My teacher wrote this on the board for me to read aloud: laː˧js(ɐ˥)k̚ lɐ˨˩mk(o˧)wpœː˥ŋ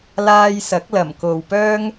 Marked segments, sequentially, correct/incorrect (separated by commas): incorrect, incorrect